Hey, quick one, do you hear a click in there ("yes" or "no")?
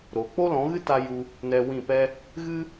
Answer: no